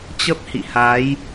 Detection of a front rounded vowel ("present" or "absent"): absent